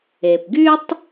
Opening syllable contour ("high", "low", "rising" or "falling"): low